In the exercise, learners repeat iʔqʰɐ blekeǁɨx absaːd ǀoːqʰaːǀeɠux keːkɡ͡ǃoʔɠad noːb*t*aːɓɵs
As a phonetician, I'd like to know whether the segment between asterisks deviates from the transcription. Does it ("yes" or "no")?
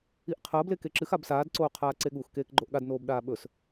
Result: yes